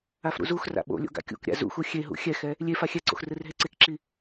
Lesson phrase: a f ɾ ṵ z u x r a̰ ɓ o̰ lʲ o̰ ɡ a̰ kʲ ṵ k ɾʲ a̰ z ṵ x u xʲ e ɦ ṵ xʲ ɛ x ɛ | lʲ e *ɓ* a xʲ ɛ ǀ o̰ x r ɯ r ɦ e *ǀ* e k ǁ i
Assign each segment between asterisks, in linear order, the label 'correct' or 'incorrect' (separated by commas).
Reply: incorrect, correct